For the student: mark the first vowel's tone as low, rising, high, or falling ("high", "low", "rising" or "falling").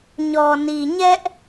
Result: low